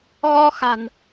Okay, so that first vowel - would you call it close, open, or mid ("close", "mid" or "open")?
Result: mid